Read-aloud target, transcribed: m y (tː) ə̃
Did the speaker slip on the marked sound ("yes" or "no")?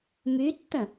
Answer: no